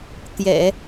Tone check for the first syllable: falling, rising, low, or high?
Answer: low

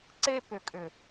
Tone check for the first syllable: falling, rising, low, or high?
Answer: high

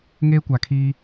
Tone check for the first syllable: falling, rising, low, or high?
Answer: high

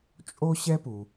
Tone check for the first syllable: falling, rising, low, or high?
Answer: high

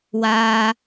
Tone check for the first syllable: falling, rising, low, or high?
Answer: low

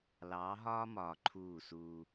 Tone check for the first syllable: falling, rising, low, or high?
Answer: rising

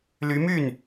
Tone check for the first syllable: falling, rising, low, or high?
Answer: rising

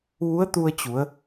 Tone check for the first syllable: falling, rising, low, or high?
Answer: rising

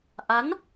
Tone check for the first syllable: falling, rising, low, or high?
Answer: rising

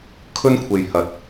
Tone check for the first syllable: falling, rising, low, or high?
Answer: high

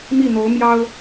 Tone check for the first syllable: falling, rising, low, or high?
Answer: falling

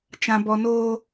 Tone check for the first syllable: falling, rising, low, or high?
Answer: high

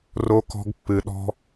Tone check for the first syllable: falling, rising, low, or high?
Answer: high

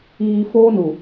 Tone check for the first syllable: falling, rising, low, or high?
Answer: low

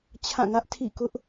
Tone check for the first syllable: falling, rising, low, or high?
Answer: falling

